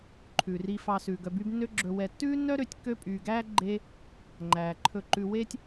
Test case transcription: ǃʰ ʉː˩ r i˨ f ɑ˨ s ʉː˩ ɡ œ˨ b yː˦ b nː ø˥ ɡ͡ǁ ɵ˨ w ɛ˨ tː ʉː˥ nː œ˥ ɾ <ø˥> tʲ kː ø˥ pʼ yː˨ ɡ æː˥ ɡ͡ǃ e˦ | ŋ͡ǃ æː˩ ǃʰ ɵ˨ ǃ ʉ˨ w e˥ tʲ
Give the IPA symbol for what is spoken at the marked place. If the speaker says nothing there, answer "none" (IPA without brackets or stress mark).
ø˦